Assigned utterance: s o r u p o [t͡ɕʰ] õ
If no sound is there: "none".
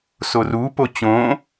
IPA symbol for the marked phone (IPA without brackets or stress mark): t͡ɕ